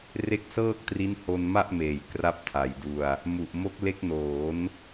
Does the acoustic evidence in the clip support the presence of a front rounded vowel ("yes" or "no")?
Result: no